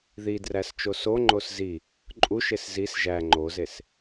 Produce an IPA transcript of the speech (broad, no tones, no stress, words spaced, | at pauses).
ðidræs t͡ʃosoŋ͡ǃos zi | ǃʼuʃes zis ʒæ ŋ͡ǃozes